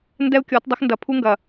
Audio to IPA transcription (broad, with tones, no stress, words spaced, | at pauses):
ndɛ˦u̯kʲɔ˨˦t dˤɐ˦xndɐ˨pʰu˦ŋɡɐ˨